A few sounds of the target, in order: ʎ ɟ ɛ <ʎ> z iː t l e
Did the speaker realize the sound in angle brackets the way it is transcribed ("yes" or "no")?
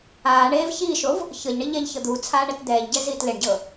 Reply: no